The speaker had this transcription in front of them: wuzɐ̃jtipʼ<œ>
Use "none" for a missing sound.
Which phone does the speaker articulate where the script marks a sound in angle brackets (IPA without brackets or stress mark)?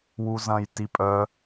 œ